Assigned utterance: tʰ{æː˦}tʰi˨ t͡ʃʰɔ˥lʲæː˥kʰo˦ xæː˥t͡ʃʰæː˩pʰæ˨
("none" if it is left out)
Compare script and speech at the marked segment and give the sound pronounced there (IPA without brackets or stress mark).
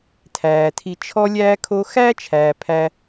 æː˩